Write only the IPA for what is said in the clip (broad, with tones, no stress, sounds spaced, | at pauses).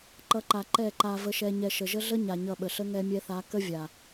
ǃ ʌ˨˦ ǃ a˨ ǃ ɛ˦˨ ǃ a˧ v ə˧ ʃ ɛ˧ ɲ ɛ˧ ʃ ə˨ ʒ ə˦ ɮ ə˦ ɲ a˨ ɲ ʌ˧ ɓ ə˨ ɬ ə˦ ŋ ɛ˧ mʲ ɛ˧ θ a˨˦ k ə˦ vʲ a˨